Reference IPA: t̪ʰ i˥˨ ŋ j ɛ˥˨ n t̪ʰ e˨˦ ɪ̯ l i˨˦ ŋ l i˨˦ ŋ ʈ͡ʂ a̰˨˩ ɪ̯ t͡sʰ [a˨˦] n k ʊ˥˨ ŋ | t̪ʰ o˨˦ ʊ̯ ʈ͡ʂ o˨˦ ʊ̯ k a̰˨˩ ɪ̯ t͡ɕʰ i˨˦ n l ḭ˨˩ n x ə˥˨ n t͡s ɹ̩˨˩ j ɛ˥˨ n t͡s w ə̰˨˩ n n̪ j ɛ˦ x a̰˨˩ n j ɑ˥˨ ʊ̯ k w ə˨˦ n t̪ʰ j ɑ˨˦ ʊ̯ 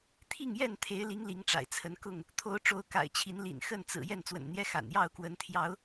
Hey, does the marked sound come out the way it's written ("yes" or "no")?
no